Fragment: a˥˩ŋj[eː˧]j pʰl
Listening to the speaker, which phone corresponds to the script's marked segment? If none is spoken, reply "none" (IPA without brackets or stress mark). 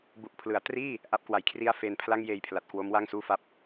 eː˧